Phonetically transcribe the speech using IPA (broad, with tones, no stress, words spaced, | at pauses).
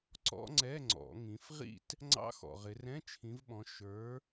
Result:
ǀɔ̰˦˥ŋ͡ǀɛ˧˥˧ŋ͡ǀɔ̰˨˩˦ŋĩ˨˦f ʁḭ˥˧t | ŋ͡ǀɑ̰˦˥xɔ̰˨ʁɪ˨˦ rɛ̃˧˥˧t͡ʃʰĩ˨˦vɓɔ̃˨˦ ʃə˞˨˦